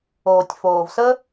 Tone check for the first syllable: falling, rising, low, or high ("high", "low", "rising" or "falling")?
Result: low